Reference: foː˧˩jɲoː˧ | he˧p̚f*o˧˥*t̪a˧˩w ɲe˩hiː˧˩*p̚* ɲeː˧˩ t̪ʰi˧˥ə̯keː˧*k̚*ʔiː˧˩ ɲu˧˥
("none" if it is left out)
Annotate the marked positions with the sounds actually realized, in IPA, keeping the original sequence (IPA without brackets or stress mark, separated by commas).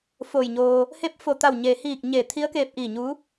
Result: o˧˩, k̚, p̚